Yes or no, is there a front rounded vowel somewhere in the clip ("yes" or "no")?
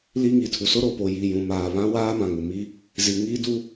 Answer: no